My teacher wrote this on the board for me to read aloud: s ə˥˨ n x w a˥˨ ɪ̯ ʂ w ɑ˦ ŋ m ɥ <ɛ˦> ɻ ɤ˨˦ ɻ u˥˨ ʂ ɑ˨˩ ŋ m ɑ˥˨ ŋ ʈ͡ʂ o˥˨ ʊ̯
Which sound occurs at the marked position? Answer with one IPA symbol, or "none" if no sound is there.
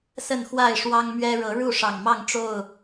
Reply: ɛ˦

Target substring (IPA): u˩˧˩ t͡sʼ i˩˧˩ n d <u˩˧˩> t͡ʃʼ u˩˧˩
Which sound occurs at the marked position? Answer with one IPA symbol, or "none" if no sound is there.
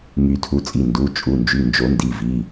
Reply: u˩˧˩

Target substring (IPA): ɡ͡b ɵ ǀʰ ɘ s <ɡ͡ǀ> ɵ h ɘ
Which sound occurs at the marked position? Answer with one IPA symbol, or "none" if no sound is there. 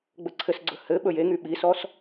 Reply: ɡ͡ǀ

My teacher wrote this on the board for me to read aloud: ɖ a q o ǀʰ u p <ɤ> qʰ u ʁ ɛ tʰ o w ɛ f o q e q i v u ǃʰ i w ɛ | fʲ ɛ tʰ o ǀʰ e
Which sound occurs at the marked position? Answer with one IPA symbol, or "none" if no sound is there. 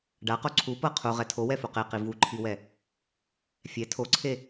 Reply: ɤ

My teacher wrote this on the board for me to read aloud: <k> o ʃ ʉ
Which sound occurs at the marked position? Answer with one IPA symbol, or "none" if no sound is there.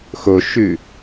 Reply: x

